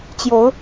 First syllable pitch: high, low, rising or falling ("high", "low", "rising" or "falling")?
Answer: rising